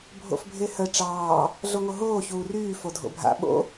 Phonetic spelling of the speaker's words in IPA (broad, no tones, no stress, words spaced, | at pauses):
bʱo̰fbʱehə ʈ͡ʂɑː | ɮoŋoɦoː çuːryː fodʱo̰bʱa̰ ɓo̰